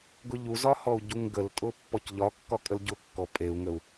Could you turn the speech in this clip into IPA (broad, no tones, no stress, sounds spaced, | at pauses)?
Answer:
ɡ ʊ ʎ u z ɒ h ɔ u̯ ɟ u ŋ ɡ ə l tʼ ʊ pː ɔ c ʎ ɒ kː ɒ kʼ ə l ɟ ʊ kː ɔ pʼ e u̯ ŋ ə u̯